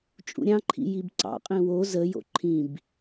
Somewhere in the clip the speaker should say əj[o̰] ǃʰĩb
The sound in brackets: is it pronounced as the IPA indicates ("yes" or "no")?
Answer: yes